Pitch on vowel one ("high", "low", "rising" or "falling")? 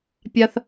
high